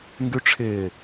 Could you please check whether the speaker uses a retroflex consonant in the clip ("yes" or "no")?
yes